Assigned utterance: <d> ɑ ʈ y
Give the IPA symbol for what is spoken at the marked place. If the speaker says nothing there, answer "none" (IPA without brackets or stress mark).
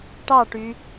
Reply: ʈ